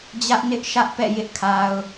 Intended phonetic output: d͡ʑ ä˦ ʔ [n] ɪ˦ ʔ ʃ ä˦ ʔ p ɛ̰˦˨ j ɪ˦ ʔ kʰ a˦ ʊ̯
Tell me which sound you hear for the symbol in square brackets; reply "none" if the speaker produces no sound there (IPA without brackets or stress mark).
n